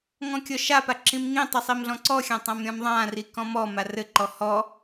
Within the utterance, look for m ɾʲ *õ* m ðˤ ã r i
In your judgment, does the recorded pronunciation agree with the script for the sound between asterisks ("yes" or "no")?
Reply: no